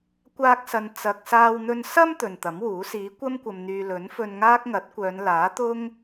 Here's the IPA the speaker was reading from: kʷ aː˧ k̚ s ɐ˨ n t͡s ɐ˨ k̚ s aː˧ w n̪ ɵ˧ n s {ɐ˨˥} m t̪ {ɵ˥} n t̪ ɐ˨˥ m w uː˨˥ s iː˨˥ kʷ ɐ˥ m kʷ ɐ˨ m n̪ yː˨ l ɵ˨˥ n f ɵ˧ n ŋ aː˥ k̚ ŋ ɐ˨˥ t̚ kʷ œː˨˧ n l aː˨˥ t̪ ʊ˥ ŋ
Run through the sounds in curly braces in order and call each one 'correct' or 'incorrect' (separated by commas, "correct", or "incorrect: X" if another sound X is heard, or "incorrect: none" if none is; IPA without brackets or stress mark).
incorrect: ɐ˧, incorrect: ɵ˨